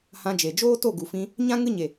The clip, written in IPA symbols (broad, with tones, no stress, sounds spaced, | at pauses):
h ã˧ d͡ʒ e˨ d͡ʒ oː˦ t o˦˨ ɡ u˨ f ĩ˧ | ɲ ã˦ ŋ ɨ˦ ɲ e˨